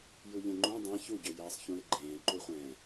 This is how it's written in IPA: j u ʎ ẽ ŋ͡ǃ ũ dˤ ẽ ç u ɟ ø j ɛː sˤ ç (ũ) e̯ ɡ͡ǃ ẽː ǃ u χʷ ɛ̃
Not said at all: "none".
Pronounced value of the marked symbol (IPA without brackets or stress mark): ũ